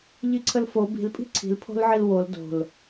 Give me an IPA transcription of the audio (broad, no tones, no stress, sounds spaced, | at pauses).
ʎ i ǀʰ ə l f o b i̤ l pʼ i̤ ǀʰ i̤ l pʰ o̤ l ʕ i l w o l d o̤ l